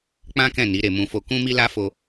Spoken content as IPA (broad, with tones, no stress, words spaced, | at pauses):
k͡pã˦kɛ̃˦˨ ni˨˦ɾe˧mũ˧ fo˧kũ˦ mi˦la˦ fo˦